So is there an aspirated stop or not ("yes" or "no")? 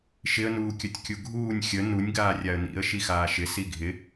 no